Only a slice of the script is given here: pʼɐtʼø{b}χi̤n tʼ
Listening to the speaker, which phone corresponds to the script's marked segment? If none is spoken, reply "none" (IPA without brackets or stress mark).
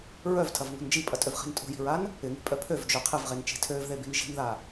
v